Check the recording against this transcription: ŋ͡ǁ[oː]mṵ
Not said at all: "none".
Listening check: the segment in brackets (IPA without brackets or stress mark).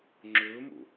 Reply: ɵː